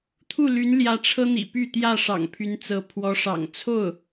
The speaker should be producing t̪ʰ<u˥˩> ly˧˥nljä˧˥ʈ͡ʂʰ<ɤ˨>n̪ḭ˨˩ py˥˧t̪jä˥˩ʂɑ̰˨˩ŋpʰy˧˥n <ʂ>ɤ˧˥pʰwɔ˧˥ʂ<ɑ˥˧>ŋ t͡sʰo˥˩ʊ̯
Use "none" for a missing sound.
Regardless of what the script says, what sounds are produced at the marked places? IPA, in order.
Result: u˥˩, ɤ˥, t͡s, ɑ̰˨˩

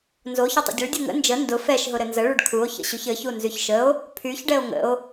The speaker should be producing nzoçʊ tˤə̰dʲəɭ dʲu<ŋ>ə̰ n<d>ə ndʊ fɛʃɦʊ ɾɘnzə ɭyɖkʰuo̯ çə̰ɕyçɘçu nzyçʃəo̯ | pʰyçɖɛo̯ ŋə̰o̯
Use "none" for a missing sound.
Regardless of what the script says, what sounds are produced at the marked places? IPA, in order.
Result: ŋ, d͡ʒ

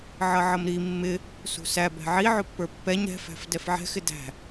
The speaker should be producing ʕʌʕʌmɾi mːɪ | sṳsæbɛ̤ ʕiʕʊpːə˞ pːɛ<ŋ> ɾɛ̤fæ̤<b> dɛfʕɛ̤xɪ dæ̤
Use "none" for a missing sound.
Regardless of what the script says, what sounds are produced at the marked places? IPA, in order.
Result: ɲ, f

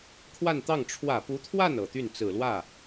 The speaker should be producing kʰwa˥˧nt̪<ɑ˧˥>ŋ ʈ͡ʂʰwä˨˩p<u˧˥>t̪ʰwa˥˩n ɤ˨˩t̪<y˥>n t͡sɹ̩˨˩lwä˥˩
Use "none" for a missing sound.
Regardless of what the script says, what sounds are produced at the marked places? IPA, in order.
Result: ɑ˥˩, u˧˥, y˥˩

